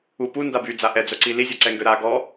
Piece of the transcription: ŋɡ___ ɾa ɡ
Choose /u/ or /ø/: ø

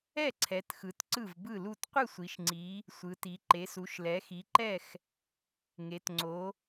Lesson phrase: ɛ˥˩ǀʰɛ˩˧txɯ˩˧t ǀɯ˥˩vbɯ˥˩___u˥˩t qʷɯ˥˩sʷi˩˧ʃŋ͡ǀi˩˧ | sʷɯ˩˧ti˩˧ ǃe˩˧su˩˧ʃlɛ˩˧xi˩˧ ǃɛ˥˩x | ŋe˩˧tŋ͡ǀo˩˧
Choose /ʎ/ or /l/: l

